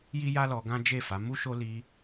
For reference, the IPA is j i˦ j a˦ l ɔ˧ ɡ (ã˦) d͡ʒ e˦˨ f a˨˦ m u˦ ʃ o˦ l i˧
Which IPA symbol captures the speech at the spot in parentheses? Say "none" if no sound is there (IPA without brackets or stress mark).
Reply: ã˦